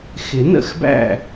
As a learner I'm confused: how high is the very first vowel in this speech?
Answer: high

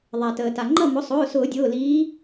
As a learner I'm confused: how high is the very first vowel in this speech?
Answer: low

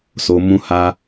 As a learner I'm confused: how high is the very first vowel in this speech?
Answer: mid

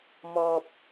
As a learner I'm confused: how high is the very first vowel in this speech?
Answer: mid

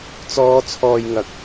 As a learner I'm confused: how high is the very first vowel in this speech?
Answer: mid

